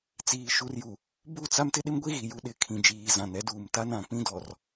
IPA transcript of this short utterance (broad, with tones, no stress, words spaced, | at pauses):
t͡siː˨ʃu˨rju˨ | bu˦˨t͡sa˦m tɪ˦ɗɪ˦mɡʷi˦ɣi˨ ju˦ɗɪ˦˨ kʰĩ˨d͡ʒiː˨zã˨n ɛ˦duː˨mta˦nã˨ k͡pĩ˦dɔ˨r